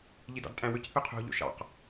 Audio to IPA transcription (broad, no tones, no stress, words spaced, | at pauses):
ʎidɑ̰dtʼæ̃wøc θøqʰo̤ ʎo̰ʃɑ̰q